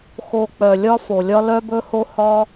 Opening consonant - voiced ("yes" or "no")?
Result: no